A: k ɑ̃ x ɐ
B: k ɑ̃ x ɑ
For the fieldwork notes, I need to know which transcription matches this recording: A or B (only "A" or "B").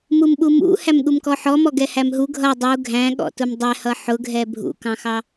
B